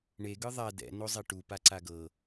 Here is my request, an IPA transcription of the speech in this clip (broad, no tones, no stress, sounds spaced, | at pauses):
ɳ e ɡ ɯ ðˤ a d ɛ̰ n o zˤ e ʈ u p a ǀ a ɡ ɤ